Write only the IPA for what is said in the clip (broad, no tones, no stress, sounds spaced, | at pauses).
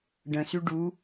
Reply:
ɖ ə̃ s y ɖ u